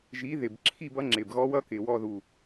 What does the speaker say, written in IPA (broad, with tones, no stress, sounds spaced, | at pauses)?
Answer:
ʒ i˨˥ ð ɪ˨˩ b ǁʰ i˥˧ b ʌ˨˥ ŋ͡ǁ ɪ˨˩ b ɣ ɔ˦˥ w ʌ˦˥ k ɪ˨˩ w ɔ˥˧ ð u˨˩